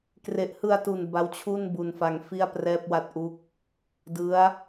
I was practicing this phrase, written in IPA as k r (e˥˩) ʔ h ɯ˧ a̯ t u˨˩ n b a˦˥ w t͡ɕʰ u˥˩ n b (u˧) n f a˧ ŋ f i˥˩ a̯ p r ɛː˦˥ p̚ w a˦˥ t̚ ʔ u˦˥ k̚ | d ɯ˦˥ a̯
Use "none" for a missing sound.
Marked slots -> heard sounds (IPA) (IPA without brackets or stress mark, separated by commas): e˨˩, u˧